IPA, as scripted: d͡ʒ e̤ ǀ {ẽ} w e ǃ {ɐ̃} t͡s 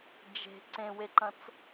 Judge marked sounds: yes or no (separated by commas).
yes, yes